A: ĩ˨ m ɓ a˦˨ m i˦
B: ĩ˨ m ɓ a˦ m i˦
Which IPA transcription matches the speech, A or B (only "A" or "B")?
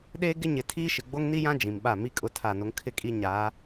A